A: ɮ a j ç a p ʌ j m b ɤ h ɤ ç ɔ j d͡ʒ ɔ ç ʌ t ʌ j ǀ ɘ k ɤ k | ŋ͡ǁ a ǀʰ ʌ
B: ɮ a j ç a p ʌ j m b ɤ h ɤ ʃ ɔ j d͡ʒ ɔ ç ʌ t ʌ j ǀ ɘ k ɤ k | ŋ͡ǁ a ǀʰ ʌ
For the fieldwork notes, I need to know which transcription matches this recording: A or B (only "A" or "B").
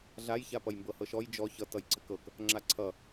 B